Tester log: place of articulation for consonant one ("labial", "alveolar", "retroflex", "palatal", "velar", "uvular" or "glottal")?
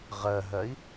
uvular